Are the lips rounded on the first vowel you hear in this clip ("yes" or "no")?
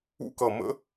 yes